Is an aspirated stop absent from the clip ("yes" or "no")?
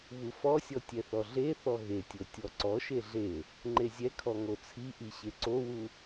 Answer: no